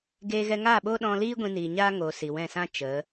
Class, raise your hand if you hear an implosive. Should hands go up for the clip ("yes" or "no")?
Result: yes